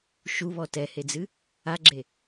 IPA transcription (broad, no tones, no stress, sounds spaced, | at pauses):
ʃ u β ɔ t ɛ h e d͡z ɨ | a ɡ͡ǁ e